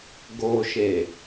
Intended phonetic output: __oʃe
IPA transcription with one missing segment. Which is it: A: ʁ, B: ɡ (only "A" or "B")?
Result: B